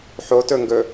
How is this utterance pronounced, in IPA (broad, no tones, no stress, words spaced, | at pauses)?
ħotɵŋɡɵ